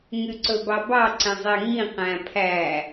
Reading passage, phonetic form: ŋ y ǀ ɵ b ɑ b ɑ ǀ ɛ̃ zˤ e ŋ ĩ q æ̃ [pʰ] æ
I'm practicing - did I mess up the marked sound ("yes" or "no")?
no